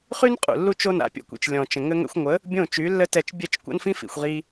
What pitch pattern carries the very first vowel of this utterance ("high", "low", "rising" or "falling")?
high